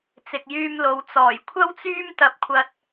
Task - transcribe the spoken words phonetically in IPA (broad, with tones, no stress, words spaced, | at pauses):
t͡sɪ˨k̚jyː˧mlo˨w t͡sɔː˨˩jkʷʰɐ˥wt͡syː˥m t̪ɐ˧p̚kʷʰɐ˧t̚